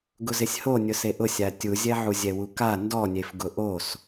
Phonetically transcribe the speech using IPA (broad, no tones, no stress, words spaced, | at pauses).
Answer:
ɡʊzɪsʲho nʲʊseʔʊsʲa tʲuzʲɛʕu zʲɛwuka ndɔnʲef ɡʊʔos